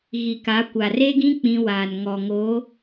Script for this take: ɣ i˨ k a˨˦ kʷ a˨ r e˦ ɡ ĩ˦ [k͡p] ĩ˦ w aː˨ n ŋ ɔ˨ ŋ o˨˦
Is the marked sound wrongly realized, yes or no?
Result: no